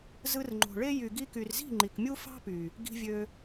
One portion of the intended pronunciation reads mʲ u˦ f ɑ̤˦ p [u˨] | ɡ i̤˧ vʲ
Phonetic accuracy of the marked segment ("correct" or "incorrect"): incorrect